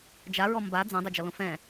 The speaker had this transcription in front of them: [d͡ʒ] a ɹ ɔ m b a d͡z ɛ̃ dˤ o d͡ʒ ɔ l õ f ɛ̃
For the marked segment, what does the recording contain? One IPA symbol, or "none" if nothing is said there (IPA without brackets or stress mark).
d͡ʒ